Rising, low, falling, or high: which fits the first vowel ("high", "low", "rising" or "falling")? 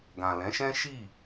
low